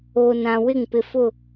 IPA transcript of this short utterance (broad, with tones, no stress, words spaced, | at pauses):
oː˨nã˨wɪ˦˨ŋ pɪ˨fʊ˦˨